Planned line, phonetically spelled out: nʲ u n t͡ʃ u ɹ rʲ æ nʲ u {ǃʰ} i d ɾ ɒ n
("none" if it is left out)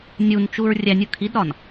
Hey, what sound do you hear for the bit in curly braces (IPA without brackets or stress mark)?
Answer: kʰ